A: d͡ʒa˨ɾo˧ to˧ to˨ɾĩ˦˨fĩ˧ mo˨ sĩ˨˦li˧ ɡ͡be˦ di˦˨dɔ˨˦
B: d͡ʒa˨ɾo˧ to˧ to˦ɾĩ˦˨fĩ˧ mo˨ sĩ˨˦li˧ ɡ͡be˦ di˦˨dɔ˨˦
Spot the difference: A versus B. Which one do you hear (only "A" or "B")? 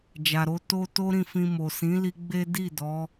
B